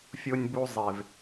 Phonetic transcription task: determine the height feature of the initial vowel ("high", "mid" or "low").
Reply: mid